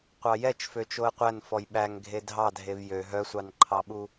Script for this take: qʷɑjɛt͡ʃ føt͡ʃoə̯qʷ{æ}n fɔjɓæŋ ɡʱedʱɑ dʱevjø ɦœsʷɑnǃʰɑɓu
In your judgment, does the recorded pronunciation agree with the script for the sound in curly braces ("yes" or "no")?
yes